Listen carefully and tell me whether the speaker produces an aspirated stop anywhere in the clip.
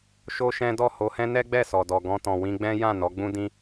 no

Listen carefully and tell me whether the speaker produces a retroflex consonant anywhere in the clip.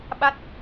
no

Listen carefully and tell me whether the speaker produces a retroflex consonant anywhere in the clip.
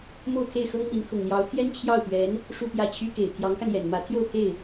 yes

